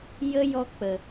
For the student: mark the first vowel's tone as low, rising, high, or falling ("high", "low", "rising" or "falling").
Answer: high